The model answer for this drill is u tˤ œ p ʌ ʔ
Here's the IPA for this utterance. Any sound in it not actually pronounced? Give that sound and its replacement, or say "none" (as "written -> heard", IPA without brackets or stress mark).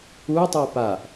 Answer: ʌ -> a